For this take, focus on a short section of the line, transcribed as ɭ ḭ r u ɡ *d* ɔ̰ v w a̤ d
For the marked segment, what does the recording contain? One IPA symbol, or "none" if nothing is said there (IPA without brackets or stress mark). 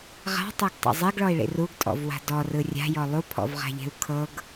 tʼ